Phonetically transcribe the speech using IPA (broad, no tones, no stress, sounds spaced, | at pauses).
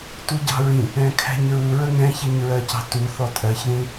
t u ɟ ɑ̤ ɹ ĩ | ɛ̃ kʰ æ̤ ɲ ɹ u ɹ ə ŋ ɛ̃ ç i ɲ ɹ ɜ c ɑ̤ t u θ ɔ tʼ ɜ ç ð ĩ